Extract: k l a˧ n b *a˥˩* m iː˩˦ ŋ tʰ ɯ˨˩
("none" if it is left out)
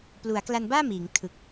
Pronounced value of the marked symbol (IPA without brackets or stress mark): aː˥˩